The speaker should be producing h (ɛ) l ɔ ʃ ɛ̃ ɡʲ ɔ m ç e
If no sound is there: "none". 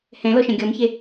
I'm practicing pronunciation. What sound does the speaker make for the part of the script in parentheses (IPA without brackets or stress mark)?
ɛ̃